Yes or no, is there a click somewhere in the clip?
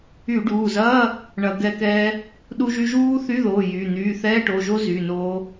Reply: no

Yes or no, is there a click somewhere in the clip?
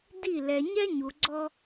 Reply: yes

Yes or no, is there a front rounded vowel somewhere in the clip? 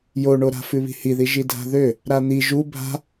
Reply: yes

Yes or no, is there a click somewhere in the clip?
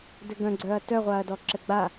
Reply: yes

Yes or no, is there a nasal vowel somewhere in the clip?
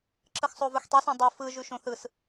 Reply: yes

